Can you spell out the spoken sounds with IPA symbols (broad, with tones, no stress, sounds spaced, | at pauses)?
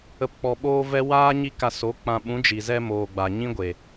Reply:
ə˨ p k͡p ɔ˨ ɓ oː˧ v ɛ˧ w aː˦ ɲ i˧ k a˨ s o˨˦ k͡p ã˨ ɓ ũ˨˦ d͡ʒ i˨ z ɛ˦ m oː˨ ɡ͡b a˨ ɲ ĩ˦ ɡʷ e˨